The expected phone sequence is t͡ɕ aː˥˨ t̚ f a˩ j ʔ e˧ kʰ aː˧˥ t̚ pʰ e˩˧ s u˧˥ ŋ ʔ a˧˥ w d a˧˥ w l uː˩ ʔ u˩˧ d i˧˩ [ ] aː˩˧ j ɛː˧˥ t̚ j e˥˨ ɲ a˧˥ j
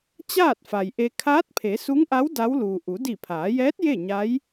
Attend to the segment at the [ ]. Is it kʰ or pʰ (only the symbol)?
pʰ